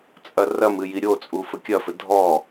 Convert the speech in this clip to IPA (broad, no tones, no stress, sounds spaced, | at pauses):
t͡sʼ ɐ r ɐ m ɨ j i ɾʲ o t͡sʼ u f ɘ kʲ ɐ f ɘ dʱ ɔ